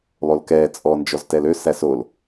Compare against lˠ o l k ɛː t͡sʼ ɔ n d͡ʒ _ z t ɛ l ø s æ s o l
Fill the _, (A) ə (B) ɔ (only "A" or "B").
B